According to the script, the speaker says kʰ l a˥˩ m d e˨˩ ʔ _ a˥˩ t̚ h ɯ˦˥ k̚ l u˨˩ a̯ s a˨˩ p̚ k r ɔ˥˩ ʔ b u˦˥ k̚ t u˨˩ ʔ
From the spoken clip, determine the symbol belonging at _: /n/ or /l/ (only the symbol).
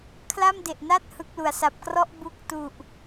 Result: n